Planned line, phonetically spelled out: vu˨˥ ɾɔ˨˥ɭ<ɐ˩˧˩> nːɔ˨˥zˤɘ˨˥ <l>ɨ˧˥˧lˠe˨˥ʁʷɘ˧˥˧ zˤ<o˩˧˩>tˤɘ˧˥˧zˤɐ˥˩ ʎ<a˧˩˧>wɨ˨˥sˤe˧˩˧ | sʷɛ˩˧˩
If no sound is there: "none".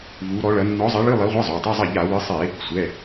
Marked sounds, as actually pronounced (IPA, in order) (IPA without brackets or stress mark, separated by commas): ɐ˨˥, ɭ, o˩˧˩, a˧˩˧